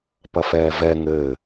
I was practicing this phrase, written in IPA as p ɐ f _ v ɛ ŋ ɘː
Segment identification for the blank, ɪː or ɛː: ɛː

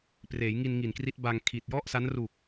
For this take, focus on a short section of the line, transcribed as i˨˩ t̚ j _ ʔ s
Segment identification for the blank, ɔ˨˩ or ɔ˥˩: ɔ˥˩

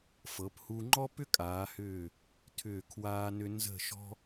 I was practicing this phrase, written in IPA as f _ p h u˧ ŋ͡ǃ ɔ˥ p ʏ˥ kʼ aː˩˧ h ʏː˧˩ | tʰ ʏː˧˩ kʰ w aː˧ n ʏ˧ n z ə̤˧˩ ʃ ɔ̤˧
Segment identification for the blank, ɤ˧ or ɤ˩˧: ɤ˩˧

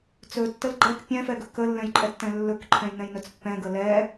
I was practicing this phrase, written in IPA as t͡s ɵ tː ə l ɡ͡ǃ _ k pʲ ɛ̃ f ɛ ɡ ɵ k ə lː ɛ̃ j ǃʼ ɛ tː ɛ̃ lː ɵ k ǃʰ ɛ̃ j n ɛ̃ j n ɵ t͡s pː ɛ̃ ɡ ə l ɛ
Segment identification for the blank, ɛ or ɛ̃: ɛ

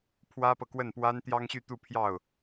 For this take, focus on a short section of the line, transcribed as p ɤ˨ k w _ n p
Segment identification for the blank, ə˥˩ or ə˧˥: ə˥˩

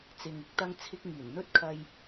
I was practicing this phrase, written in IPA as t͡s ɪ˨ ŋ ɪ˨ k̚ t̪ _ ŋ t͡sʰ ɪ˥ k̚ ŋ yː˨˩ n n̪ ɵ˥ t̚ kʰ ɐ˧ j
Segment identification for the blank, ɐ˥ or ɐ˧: ɐ˥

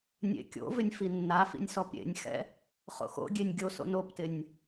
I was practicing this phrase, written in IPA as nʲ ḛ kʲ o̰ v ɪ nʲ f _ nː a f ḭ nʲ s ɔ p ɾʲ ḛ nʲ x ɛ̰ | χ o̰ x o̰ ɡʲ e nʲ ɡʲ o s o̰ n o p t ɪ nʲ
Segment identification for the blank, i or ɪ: i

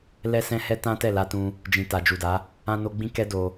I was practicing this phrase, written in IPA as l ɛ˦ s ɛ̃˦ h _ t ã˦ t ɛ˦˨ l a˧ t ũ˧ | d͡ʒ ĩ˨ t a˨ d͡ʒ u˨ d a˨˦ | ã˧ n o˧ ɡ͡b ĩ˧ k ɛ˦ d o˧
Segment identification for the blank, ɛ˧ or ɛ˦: ɛ˦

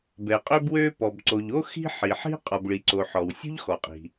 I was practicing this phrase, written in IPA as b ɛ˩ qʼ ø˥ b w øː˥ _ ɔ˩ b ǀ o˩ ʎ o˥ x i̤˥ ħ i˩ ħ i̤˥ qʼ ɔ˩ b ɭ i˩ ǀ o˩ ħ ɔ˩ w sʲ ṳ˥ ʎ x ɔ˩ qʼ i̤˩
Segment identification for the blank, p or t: p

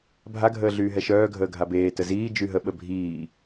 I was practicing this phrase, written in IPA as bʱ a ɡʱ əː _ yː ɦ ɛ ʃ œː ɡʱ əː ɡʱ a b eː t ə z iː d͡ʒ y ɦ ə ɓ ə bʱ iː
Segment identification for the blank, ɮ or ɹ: ɮ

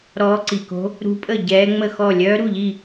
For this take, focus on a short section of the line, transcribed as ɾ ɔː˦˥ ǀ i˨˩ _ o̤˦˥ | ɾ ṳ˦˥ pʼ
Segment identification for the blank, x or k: k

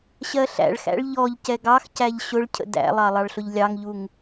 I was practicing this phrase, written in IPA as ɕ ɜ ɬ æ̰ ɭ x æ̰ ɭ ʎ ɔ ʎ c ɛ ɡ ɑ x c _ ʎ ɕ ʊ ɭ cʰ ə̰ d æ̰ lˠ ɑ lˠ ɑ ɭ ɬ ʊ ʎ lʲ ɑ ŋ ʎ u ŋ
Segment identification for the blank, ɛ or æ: æ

